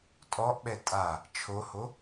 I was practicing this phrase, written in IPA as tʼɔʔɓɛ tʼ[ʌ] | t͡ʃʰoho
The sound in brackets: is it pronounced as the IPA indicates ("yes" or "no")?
no